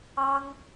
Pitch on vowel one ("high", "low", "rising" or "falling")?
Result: high